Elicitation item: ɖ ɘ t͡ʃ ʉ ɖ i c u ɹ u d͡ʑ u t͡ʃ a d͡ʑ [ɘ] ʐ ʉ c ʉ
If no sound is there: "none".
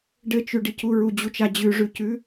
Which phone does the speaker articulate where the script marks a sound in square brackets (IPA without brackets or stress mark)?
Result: ʉ